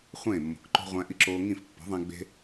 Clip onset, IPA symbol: χʷ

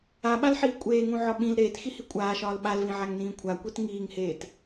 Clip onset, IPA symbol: a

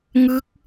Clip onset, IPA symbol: ŋ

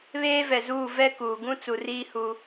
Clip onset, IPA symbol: β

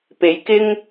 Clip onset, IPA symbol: p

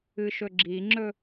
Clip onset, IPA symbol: ɨ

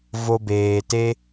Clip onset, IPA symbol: v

